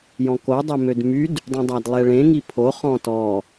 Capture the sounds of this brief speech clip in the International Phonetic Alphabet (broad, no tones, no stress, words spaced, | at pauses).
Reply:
jɔ̃ko dˤemødmyd | dˤũdˤadlˠɛɭẽ ŋipʰo χɔ̃tɔ